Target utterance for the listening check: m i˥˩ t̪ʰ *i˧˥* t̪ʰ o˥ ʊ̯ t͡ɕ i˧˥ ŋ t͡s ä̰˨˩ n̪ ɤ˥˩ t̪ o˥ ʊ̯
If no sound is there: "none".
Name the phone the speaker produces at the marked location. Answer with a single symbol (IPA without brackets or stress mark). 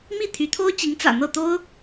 y˧˥